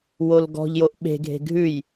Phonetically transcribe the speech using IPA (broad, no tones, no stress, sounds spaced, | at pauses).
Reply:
w o l ɡ ɔ̤ ʎ j o ʔ ɓ e̤ ɡʱ e̤ ɡʱ ʉ j